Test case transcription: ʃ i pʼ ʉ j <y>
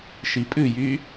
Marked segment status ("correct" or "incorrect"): correct